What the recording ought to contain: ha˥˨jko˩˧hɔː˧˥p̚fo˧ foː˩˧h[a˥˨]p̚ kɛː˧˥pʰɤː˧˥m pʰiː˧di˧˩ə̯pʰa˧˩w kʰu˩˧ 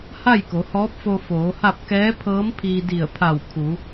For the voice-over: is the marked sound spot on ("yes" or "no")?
yes